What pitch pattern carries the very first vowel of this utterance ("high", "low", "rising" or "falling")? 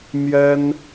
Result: high